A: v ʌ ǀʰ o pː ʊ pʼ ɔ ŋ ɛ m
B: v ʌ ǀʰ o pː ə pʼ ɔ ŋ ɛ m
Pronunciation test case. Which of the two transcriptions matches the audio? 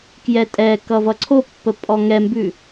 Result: B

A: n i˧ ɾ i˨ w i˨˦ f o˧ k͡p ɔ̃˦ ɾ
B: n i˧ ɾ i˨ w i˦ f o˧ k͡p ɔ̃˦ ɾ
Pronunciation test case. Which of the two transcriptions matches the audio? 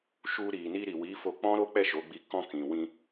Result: A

